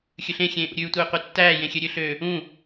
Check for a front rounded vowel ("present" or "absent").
present